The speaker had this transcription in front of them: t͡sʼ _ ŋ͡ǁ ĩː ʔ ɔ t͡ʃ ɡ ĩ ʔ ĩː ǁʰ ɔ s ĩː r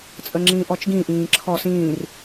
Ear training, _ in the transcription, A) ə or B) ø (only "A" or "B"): A